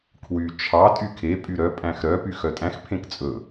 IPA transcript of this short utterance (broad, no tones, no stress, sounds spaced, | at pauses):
kʰ w y t͡ʃʰ ɑ tʼ y kʰ e pʼ y ɾ œ pʼ æ̃ x ɾ œ p y x œ tʼ æ̃ x pʰ ẽ k t͡sʼ ɵ